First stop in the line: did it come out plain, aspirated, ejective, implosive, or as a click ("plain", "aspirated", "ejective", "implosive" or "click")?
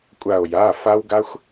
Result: ejective